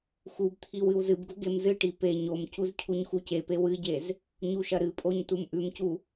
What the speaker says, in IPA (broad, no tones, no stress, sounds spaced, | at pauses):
x u b t̪ʰ i w ɨ w z ɨ b ɡ u ɡ e m z ɨ ʈ i p e ɲ o m c u z cʰ u ɲ x u c e p e w ɨ ɟ e z | ɲ u ʃ ɐ ɾ ɨ pʼ o ɲ t u m ʔ ʉ m c u